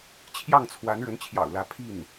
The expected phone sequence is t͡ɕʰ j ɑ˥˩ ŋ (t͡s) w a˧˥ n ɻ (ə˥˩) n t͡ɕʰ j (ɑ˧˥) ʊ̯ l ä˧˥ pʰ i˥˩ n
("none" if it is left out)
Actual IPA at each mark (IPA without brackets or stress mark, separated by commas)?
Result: t͡sʰ, ə˧˥, ɑ̰˨˩